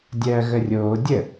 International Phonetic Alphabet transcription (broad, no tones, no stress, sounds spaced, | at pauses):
dʲ ɜː ɣ ə rʲ oː dʲ ə